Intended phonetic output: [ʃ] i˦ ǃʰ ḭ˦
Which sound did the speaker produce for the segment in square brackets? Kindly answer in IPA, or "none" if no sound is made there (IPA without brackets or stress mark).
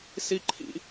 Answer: s